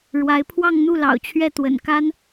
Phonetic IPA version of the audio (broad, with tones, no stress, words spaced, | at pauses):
ɻwa˧˥ɪ̯ pʰwɑ˥˧ŋn̪u˥˩ lɑ̰˨˩ʊ̯t͡ɕʰɥɛ˥˩ t̪wə̰˨˩nka˥n